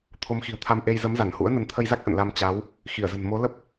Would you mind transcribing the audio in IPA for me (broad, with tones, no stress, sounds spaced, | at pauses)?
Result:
t̪ʰ o˨˦ m x i̤˨˩ ə̯ t̪ʰ a˧ m ʔ e˧ j z ə˨˦ m z a˧˩ n h ṵ˧˥ ə̯ n ə˨˦ n t̪ʰ ə˧ j z a˦˥ k̚ ʔ ə̰˧˨ n l a˧ m t͡ɕ a˨˦ w | x i˧˩ ə̯ z ə̤˨˩ n m o˨˦ l ə˦˥ p̚